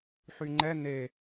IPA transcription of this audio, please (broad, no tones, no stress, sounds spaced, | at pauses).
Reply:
ħ y ŋ͡ǃ ɛ n e